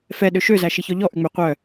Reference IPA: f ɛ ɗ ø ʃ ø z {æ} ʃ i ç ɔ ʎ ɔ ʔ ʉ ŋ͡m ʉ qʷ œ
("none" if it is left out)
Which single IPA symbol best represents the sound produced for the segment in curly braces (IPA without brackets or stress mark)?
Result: æ